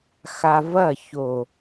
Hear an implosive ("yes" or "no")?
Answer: no